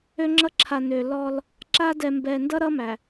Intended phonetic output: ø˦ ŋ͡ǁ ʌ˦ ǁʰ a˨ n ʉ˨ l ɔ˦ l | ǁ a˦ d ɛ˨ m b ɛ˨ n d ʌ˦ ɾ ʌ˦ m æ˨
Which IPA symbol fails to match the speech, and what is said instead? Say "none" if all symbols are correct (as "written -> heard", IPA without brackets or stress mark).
ʉ˨ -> ø˨